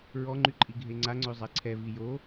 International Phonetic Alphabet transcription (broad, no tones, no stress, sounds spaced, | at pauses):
ɹ ɔ ŋ͡ǃ y ǃʼ i ɡʱ e ŋ͡ǀ a ŋ͡ǀ ø zˤ ɛ ǀʰ ɛ v i j o